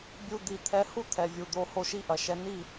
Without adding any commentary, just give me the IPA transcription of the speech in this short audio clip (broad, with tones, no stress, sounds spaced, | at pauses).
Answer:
bʲ u˦ d̪ i˧ t̪ʰ ɛ˧ h u˦ t̪ʰ ɛ˨ vʲ u˨ d̪ o˧ h o˦ ʃ i˦ ʔ ɐ˨ ʃ ɛ˧ n i˦˨